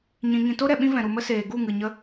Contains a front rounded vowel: no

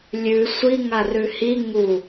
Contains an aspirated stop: no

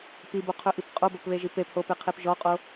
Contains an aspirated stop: yes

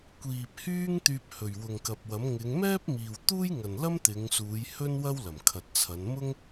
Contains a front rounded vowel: yes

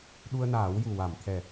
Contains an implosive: yes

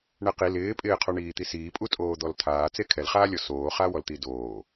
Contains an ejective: yes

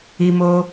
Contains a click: no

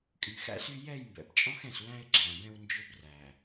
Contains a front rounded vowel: yes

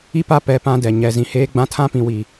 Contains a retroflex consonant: no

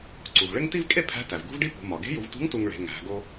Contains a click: yes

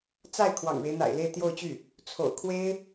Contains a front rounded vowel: yes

